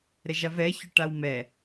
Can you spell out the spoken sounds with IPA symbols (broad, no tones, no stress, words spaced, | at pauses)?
ɾɛʒavɛ çʏʈawmɛ